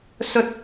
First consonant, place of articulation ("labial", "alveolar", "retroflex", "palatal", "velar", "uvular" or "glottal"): alveolar